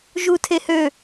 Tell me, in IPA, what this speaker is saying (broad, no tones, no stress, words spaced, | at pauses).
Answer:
ʒutʰehø